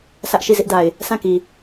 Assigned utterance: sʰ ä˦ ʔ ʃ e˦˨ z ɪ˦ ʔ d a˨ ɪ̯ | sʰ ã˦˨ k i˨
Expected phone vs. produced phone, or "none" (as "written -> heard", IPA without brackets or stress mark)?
e˦˨ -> i˦˨